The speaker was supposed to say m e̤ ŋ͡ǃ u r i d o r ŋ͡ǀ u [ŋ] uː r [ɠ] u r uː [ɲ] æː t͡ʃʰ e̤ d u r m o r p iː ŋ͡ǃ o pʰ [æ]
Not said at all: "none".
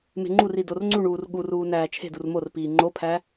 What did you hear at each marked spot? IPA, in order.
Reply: ɳ, ɠ, n, æ

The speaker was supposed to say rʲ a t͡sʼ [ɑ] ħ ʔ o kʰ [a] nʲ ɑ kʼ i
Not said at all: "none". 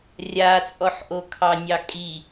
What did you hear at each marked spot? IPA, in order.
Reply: ɔ, ɑ

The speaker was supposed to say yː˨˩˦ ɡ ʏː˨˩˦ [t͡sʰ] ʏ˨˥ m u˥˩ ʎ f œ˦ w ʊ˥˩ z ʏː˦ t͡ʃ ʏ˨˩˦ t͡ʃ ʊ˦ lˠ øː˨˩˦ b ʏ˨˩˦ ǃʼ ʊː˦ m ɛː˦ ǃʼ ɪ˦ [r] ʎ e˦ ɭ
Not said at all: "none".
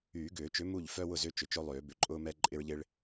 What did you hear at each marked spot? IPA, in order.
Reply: t͡ʃ, ɹ

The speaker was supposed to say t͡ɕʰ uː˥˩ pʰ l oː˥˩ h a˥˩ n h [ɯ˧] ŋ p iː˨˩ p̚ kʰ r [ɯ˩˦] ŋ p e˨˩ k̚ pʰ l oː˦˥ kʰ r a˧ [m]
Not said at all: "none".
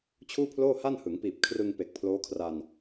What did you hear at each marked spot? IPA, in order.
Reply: ɯ˩˦, ɯ˧, n

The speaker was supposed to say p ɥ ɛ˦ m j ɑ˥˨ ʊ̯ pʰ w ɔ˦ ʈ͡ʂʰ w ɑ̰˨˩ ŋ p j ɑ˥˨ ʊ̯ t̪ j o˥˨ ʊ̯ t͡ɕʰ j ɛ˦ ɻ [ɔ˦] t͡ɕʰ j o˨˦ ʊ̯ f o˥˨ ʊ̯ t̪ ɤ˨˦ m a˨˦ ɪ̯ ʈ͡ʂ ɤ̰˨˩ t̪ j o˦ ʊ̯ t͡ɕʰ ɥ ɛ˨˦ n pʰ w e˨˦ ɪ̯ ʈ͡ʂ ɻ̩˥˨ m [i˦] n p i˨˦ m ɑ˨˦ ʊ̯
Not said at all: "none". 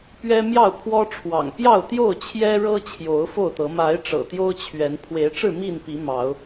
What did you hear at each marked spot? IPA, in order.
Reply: ɤ˦, i˥˨

